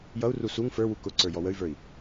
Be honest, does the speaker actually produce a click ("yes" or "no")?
yes